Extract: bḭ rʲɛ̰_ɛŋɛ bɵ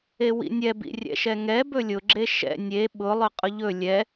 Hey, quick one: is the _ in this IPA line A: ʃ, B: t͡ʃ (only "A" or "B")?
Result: A